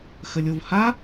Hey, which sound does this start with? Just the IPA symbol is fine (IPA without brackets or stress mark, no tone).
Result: x